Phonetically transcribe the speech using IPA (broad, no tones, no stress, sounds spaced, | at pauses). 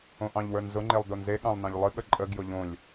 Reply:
õ ʔ ɑ̃ ʎ w ə˞ n z ʊ ŋ͡ǃ e lˠ d o n z e ɠ ɑ̃ lˠ n ɑ̃ ʎ lˠ ɨ ɠ ə ǃʼ ə ɡ j ʊ ʎ õ lʲ